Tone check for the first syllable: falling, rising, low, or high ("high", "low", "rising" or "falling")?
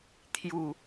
low